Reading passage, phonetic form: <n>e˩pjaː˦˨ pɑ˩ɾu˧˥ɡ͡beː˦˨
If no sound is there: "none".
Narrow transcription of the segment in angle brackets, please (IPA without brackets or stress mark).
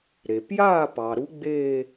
ɾ